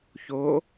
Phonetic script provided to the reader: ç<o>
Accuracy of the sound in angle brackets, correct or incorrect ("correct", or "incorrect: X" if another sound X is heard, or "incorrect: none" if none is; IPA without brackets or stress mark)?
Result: correct